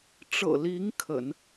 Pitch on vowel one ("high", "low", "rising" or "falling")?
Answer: low